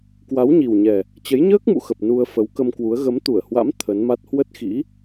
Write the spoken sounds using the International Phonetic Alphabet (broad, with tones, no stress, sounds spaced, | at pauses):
k w a˨˦ w ɲ i˨˩ w ɲ ɛ˨˩ | t͡ɕ ə˨˦ j ɲ əː˦˥ k̚ m ṵ˧˨ x ə˨˩ p̚ n u˧ ə̯ f ə˨˦ w k ə˧ m k w u˨˦ ə̯ ɣ ə˨˦ m t̪ u˧˩ ə̯ h w a̰˧˥ m t̪ʰ ə˨˦ n m a˦˥ t̚ h w ə˦˥ t̚ x ḭ˧˥